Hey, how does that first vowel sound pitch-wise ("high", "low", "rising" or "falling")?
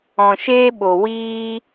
low